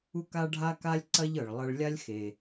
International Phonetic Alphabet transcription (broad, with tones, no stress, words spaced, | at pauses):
u˥ka˥ɖʱa˥ka˥lʲ ǀɐ˥ʎɤ˩ɭ lˠɐ˧ɭ lʲa˥lʲxe˩